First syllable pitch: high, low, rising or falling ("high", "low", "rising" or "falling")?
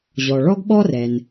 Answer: low